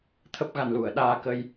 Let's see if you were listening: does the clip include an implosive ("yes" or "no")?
yes